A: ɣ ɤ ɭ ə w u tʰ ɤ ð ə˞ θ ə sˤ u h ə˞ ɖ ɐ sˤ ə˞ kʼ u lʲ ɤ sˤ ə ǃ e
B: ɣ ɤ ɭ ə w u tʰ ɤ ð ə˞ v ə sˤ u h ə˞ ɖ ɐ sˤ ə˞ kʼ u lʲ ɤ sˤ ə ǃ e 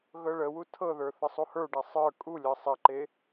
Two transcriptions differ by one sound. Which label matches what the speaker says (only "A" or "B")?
A